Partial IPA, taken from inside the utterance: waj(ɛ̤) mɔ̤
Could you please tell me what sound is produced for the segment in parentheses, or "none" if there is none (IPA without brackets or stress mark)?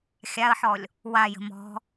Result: ə̤